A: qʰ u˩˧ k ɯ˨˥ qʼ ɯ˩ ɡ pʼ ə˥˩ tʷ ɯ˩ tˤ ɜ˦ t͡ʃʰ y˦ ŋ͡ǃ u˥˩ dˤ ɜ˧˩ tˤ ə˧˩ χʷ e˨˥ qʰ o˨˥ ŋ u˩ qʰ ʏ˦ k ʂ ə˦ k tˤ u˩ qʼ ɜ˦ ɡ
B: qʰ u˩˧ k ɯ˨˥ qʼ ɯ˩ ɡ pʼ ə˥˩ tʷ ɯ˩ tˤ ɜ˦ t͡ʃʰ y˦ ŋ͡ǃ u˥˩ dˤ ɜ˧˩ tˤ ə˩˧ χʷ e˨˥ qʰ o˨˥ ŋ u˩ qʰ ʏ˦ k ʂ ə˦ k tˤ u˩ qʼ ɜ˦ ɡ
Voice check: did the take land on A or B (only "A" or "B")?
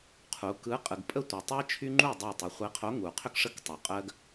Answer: B